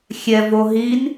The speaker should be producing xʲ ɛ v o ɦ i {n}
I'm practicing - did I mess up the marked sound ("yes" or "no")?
no